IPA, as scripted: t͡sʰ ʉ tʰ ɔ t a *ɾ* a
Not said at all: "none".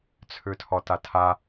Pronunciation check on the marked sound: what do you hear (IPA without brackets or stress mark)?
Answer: tʰ